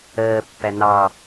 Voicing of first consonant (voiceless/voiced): voiceless